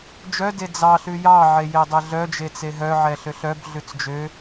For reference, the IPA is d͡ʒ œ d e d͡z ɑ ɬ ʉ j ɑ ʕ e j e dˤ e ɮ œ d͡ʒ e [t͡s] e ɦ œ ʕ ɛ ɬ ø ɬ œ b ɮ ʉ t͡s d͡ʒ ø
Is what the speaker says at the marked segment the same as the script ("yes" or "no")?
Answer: yes